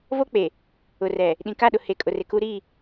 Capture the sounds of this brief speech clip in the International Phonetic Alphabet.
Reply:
v o˦ k͡p e˨ | ʊ˨ r ɛ˨ | ɗ ĩ˨ k a˦˨ ɗ ʊ˨ h e˨ kʼ ʊ˨ r e˨ k u˦ ɾ i˦˨

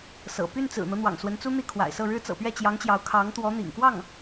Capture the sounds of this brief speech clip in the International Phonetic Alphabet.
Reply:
s ɤ̰˨˩ p y˥˩ n t͡s ɹ̩˨˩ n̪ ɤ˦ n̪ w ɑ̰˨˩ ŋ s w ə˧˥ n t͡s u˥ n̪ i˥˩ kʰ w a̰˨˩ ɪ̯ s ɤ˥˩ ɻ ɻ̩˥ t͡s ɤ̰˨˩ p ɥ ɛ˥˩ t͡ɕ j ɑ˧˥ ŋ t͡ɕ j ɑ˧˥ ʊ̯ kʰ ɑ˧˥ ŋ t̪ w ɔ˧˥ n̪ ḭ˨˩ ŋ k w ɑ˥˩ ŋ

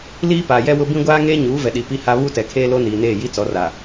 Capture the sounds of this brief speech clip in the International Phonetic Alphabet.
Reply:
l iː˦ p a˨ j ɛ˦ w ʊ˦ b ĩ˦ ɡʷ aː˦ ŋ eː˦ ɲ uː˨˦ v ɛ˨ ɗ i˨ p i˦ h a˦ β u˦ t ɛ˨ kʰ eː˦ l o˦ n iː˨ n eː˦˨ j i˦ t͡s ɔ˨˦ r a˨

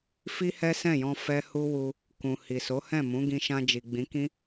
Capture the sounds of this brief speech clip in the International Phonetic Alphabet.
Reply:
f i˦ h ɛ˦ s ɛ̃˦˨ j ɔ̃˧ f ɛ˦ h u˦ w u˧ | k ũ˨ h i˨ s o˨˦ h ɛ̃˦˨ m ũ˨˦ ɡ ĩ˧ ʃ ã˧ d͡ʒ i˨ ɡ͡b ĩ˨˦ k ĩ˦

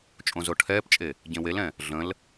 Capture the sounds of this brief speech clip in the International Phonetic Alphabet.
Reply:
t͡ʃʼ õ z o ʈʰ ɛː p t͡ʃʼ e | ɟ ẽ w e l ɛ̃ | ɮ ə̃ l

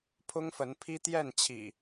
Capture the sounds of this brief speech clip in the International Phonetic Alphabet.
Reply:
pʰ ʊ˦ ŋ f ə˨˦ n pʰ i˦ t̪ j ɛ˥˨ n t͡ɕʰ ḭ˨˩

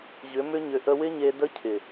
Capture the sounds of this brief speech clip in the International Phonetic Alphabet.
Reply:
ʑ ʏ˨˦ m ʏ˦ ɲ ʏ˧ ʔ ə˧ w ɪ˦ ɲ e˧ d ə˦ cʰ ɪ˨

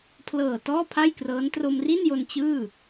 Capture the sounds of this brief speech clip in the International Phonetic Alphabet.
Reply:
pʰ l ɤː˨˩ t ɔː˥˩ pʰ a˥˩ j k r ɤː˦˥ n t r o˧ m r i˥˩ n j o˧ n t͡ɕ ɯː˥˩

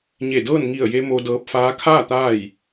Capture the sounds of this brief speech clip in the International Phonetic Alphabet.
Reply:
ɲ e˧˩ d ɤː˥˨ n ŋ i˧˩ ə̯ j e˧ m o˧ d ɤː˧ p̚ f aː˧˥ kʰ aː˥˨ t̪ aː˥˨ j

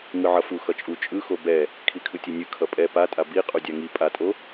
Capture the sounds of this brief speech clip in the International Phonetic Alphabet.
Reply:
ŋ ɯ ʕ ʌ f u x ʌ t͡ʃʼ u t͡ʃʼ ɯ x o b ɛ | kʰ i kʰ ɯ tʲ e nʲ ɯ kʰ ʌ pʼ ɛ p a tʼ a b i qʼ u dʲ a ŋ i pʼ a tʼ o

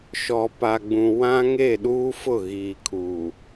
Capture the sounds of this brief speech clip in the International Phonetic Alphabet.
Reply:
ʃ ɔ˨ p a˨ ɡ͡b ũ˨ w ã˦ ŋ e˦˨ ɗ uː˦ f ʊ˦˨ ɣ iː˨ kʰ uː˨

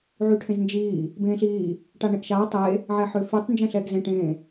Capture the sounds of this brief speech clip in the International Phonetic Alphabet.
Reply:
ʕ y ʈʰ ẽ z n d͡ʒ iː | b ẽː ɬ iː | ʈ a ɳ ẽ ʔ ʃ aː tˤ e | ʕ ɛ ħ ʏː f y tˤ n d͡ʒ ɛ̃ ɬ ɛː ɡ z ẽ ʈ ẽ

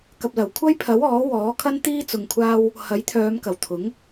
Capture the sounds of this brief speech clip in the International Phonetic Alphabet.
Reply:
k ɐ˨ p̚ l ɐ˨˩ w kʷʰ ɐ˥ j pʰ ɐ˨˥ w ɔː˨˥ w ɔː˨˥ kʰ ɐ˥ n t̪ iː˥ t͡s ʊ˧ ŋ kʷʰ aː˥ w | h ɐ˨˥ j t̪ʰ œː˨˧ m k ɐ˨˩ w t̪ʰ ʊ˨˥ ŋ

